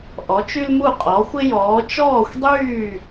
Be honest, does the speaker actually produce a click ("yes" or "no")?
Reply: no